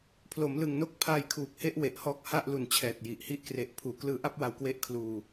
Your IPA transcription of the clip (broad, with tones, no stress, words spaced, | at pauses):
pʰlo˩˦mlɯ˨˩ŋno˦˥k̚ pʰaː˧jkʰuː˨˩k̚he˦˥ʔ we˨˩ʔhɔː˦˥k̚ha˥˩ʔ lu˨˩nt͡ɕʰɛː˨˩t̚ ji˨˩ʔhi˥˩ʔ kre˨˩ʔ pʰuː˨˩ klɯː˦˥ʔa˥˩p̚wa˧wkwe˦˥ʔ kʰluː˧